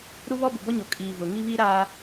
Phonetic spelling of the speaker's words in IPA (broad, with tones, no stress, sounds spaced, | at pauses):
ɾ u˦ β ɔ˦ b ʊ˨ b ɔ˦ ɲ o˨ kʼ iː˨ v ʊ˨ ŋ i˦ β iː˦ ɾ aː˦